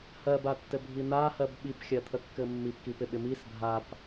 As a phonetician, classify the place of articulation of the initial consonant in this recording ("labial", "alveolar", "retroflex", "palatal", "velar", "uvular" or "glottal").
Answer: glottal